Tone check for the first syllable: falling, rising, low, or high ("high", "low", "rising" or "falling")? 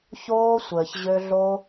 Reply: high